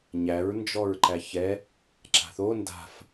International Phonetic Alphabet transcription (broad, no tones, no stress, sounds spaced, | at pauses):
ɲ æ ɹ n d͡ʒ ɔ ɹ ǃ æ ç ɛ | ǁ a̤ θ o n d a̤ f